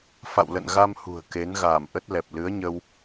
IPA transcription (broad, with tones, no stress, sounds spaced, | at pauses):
f a̰˧˨ w l ə̰˧˨ n ɣ a˧ m h ṳ˨˩ ə̯ k e˨˦ n ɣ aː˧˩ m ʔ ə˦˥ t̚ l ɛ˨˩ p̚ l ɨ˨˦ ə̯ ɲ ə˧ w